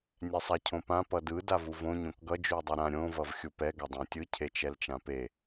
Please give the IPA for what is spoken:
nʲɛsˤacʰõpã pʌdɯ davuvõ ɲõkɡʌ d͡ʒui̯dˤiɾã ɾʲõ vʌvxʲupɛ ɡʌdˤãtʲɯ cʰet͡ʃɛlt͡ʃãpe

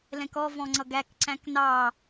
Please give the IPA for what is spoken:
lɛ̃kɔ vɔ̃ŋ͡ǀʌɡæk ǀæ̃knɑ

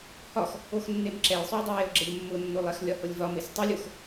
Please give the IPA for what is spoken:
hɒx | oxnːemǁɛj sˤue̯dˤujeo̯ɡ͡ǁɛʎ mːʊnːolˠɛx lʲɒhʊlʲvɒmes tˤʊlʲox

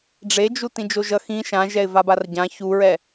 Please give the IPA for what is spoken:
ɖ͡ʐed͡ʒu tĩd͡ʒoʒʌ xĩ ʃãʒɛɪ̯ vabarɟã çuɹɛ

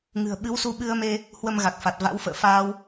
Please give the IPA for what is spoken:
ŋɨ̤˨˩ə̯ ɓɨ˨˦wsu˧ɓɨ˧ə̯me˧ | hwə˧mɣa˨˩k̚fa˨˩t̚ va̰˧˥wfə̰ː˧˨ faː˧w

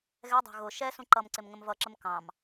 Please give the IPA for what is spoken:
ɣɛdˤɑ̤ ɣʊ ʃɛsũ ǃʌmǀɪm ŋə̃mvʌǁəm kɑ̃m

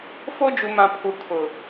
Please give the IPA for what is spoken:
fo˦d͡ʒu˨mã˨ pʰu˨kʰʊ˨

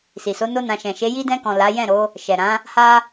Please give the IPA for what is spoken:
si˨so˨˦ no˦nã˧ ʃɛ̃˨ʃe˨˦ ji˧dɛ̃˧kɔ̃˨ la˨˦ jɛ̃˦˨ɾo˨˦ | ʃɛ˨ɾã˨˦ | ha˧

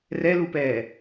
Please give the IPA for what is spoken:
rɛlupɛː

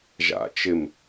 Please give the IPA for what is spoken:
ʒa̰ t͡ʃɪm

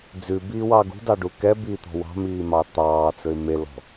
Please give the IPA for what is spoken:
d͡zʉbiːwɑ ɡṳdɑɖu kɛbiːt̪ɔ̤ wɑ̤miːmɑ t̪ɑːt͡sɵɪ̯ melɔ̤

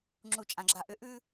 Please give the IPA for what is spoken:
ŋ͡ǁu˨t͡ʃʼã˨ɡ͡ǁa˨ ʔʏ˨ʔʉ˦

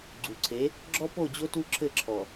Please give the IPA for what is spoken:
ɡ͡ǀu˨ǀʰe˨˦ | ɡ͡ǁɔ˦po˦˨d͡ʑo˦ tu˦ǁʰɘ˦˨ǁʰɔ˨

